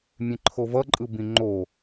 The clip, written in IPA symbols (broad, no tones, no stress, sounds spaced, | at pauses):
mʲ ẽ ǃʰ o v ʌ ǃʼ ɯ b ĩ ŋ͡ǃ o